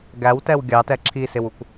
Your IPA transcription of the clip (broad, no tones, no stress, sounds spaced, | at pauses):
ɡ æ w t ɛ w ɡʲ ɑ t ɛ ǁʰ i s ɪ w u k